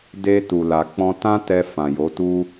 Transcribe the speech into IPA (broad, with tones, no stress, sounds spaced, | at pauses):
d e˧ t u˨ l a˨ k͡p ɔ̃˧ t ã˦ t ɛ˧ f ã˨ j o˨˦ t u˦